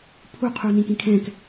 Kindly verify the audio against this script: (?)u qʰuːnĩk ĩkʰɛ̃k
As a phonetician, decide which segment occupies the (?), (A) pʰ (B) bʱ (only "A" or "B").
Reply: A